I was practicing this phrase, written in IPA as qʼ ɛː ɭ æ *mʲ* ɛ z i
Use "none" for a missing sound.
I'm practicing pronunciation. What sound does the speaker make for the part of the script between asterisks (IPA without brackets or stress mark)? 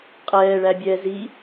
bʲ